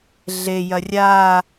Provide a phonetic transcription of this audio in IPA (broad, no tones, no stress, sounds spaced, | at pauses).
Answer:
ɮ e j ɐ rʲ a